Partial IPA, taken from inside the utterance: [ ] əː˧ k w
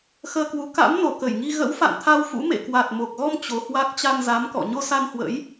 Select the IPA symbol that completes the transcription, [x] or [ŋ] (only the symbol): x